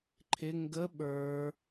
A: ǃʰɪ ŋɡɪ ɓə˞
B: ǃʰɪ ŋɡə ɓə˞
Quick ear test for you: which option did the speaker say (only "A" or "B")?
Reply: B